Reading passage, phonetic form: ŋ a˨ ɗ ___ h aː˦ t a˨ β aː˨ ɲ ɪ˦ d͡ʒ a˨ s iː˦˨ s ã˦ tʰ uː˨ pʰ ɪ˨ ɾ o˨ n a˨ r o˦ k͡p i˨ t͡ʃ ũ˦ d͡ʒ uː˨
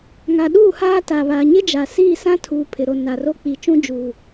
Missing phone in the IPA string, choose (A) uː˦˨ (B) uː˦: A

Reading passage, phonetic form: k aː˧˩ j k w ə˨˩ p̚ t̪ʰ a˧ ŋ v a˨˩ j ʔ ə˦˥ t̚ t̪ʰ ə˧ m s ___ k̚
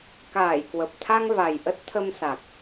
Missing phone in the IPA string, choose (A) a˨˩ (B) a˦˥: A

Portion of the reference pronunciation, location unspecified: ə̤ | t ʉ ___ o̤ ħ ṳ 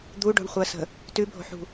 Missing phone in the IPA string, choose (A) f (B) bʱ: B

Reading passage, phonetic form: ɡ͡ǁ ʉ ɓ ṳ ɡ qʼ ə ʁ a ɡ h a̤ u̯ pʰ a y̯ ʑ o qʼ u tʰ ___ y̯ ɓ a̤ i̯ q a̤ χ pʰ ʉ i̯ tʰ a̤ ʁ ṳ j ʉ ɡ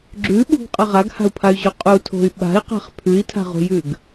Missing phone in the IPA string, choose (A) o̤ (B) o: A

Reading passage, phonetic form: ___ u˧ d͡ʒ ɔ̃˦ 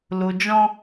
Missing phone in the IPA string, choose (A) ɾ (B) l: B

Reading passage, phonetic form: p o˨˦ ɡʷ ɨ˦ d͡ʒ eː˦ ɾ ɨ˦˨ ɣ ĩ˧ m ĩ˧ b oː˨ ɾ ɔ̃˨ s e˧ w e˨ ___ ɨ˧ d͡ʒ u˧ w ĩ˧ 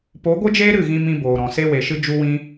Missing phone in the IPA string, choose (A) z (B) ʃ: B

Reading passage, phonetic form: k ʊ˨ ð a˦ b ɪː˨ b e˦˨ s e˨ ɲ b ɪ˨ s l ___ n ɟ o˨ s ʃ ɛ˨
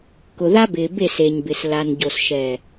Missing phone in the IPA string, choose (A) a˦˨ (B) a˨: B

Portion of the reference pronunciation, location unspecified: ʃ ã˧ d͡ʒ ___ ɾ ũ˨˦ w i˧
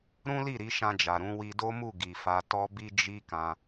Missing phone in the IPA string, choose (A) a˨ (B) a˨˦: A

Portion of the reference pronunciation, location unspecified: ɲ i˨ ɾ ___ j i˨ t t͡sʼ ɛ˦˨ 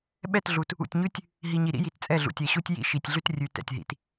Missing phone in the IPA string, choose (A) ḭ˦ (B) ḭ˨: A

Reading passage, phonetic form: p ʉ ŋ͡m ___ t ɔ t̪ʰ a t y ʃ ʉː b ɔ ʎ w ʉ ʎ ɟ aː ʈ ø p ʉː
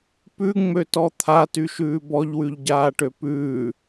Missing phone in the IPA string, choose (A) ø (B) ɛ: A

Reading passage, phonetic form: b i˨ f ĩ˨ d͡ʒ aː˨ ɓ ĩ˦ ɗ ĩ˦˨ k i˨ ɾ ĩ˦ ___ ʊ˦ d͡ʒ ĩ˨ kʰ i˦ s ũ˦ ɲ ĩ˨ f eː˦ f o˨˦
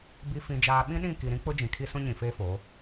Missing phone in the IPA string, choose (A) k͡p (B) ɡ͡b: A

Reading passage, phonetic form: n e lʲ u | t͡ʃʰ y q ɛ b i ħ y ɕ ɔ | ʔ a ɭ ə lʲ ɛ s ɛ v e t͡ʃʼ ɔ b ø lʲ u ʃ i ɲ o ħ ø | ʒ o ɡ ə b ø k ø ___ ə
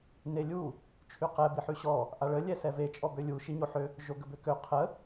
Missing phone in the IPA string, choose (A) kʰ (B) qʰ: B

